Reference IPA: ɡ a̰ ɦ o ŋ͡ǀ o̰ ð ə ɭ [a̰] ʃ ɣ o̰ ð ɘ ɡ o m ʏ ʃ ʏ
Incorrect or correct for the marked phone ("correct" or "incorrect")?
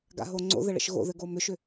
incorrect